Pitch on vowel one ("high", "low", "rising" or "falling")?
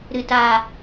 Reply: low